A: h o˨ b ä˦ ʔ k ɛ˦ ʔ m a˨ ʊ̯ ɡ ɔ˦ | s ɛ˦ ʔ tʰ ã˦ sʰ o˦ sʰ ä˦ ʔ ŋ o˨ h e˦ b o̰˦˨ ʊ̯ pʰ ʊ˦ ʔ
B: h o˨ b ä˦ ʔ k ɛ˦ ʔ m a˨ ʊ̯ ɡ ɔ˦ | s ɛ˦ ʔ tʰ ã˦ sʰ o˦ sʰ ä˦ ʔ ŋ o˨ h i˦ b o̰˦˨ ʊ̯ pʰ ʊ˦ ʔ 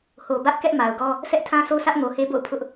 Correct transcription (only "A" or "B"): A